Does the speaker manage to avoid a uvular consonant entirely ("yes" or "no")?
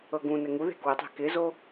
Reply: yes